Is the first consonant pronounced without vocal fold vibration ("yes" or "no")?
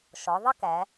yes